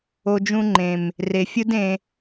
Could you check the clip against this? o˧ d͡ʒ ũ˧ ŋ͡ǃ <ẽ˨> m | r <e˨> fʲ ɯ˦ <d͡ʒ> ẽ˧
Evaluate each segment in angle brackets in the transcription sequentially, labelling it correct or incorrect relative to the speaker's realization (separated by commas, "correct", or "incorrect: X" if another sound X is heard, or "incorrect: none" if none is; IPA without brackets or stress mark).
correct, correct, incorrect: d